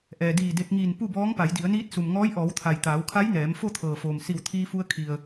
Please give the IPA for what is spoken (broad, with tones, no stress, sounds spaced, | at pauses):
ʔ ɛː˩ d iː˧˩ d e˧ k̚ ŋ iː˧˩ n p u˥˨ b ɔː˧˥ ŋ p a˩˧ j d i˩˧ ə̯ n iː˧˥ t̚ s u˩ m ŋ ɔː˧˥ j ʔ ɔː˩˧ w t̪ʰ a˩ j t̪ aː˩˧ w kʰ a˧˥ j n ɛː˩˧ m f o˥˨ t̪ʰ ɤː˩ f oː˩ m s i˧˩ w t̪ʰ iː˧ f u˧ ə̯ kʰ i˩ ə̯